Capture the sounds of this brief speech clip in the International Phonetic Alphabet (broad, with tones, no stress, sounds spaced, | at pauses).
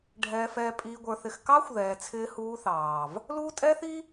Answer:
ɖʱ ɛː˨ f ɛː˨ pʼ iː˨ ɡʷ ə˞˨ θ ɪ˨ x k ɑ˦ xʷ ð ɛː˨ t͡sʰ ɪː˦ h uː˦ θ ɑː˨ v | l uː˦ tʼ ɛː˦ θ i˦